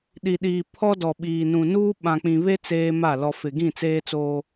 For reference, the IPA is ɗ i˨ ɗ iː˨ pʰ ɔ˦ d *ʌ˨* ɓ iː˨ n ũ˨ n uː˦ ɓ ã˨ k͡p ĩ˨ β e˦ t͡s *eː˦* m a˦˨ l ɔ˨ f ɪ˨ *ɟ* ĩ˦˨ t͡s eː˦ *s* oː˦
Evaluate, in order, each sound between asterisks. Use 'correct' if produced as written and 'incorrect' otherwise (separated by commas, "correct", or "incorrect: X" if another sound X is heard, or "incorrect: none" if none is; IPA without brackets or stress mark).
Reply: incorrect: ɔ˨, correct, incorrect: ɡ, incorrect: t͡s